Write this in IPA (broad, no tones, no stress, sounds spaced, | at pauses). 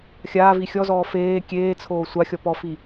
xʲ aː v i xʲ ɔ z ɔː f eː kʲ eː t͡sʰ oː sʷ a xʲ ɔ p ɔ f i